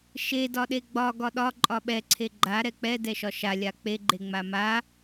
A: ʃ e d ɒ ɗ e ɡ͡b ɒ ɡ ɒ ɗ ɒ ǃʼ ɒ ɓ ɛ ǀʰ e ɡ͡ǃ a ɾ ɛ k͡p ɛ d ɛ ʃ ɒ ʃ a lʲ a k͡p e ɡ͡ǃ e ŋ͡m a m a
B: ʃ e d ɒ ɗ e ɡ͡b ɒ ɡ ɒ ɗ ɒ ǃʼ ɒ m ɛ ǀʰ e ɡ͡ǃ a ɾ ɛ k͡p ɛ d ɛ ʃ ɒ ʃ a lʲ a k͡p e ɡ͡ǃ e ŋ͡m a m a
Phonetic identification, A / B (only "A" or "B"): A